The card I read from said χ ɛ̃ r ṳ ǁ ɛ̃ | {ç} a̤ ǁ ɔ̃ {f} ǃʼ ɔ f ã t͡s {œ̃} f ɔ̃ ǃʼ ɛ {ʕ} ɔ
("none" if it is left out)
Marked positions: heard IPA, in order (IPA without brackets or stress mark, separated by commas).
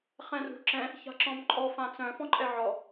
ç, m, œ̃, ʕ